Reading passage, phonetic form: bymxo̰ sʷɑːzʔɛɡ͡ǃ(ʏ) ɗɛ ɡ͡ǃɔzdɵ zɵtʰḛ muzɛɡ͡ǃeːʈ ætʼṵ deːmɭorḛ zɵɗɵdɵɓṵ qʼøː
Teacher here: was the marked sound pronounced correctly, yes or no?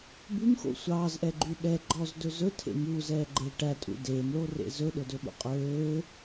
no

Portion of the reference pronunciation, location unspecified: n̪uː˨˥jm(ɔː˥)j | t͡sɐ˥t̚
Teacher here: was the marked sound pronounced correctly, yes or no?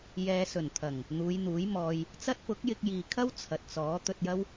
no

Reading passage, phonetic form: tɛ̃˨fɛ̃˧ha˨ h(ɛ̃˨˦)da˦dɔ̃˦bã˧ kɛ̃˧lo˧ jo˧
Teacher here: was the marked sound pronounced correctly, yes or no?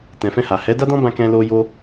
no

